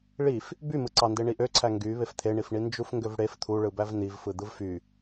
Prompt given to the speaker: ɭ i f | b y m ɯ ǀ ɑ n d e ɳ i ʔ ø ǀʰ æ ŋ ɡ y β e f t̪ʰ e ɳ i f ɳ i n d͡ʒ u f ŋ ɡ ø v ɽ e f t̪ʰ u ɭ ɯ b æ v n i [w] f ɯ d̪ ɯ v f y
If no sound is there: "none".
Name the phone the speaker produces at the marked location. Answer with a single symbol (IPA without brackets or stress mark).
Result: v